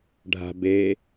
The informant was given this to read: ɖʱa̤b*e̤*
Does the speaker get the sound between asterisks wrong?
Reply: yes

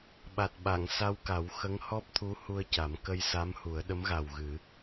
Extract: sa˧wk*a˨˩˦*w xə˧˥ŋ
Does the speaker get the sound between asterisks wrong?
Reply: no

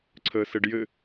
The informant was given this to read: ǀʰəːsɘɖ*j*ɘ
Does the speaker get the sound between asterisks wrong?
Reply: no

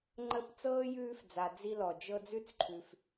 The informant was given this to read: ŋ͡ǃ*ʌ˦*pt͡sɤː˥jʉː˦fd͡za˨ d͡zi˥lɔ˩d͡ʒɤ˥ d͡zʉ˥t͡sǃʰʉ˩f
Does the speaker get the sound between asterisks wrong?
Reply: yes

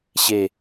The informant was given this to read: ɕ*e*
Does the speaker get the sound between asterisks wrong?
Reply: no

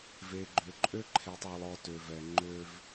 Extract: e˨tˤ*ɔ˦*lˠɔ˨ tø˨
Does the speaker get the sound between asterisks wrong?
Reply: yes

